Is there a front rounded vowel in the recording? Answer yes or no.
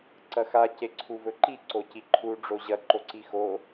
no